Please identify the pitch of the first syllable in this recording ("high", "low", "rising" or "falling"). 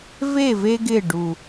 falling